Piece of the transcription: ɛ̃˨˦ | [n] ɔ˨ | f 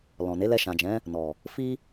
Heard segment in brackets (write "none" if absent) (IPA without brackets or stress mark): n